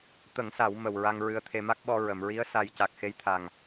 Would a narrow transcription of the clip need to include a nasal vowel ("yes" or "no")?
no